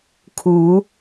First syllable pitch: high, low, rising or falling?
rising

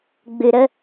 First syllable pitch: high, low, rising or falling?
low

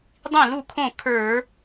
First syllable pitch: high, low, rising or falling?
falling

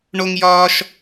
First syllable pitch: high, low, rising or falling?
high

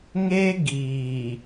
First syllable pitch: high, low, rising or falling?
high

